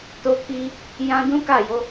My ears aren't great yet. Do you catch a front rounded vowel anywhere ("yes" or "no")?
no